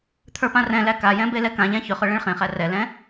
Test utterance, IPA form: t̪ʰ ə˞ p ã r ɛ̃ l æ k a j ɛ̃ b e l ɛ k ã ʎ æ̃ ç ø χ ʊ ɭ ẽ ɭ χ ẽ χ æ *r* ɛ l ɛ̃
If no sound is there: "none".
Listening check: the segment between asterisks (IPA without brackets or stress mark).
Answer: r